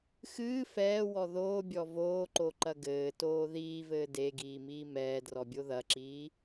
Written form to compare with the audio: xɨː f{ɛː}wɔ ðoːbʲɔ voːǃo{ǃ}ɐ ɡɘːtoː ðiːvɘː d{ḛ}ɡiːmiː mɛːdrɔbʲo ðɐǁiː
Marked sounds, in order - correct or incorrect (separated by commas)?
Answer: correct, correct, incorrect